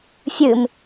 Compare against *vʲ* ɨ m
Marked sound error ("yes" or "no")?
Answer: yes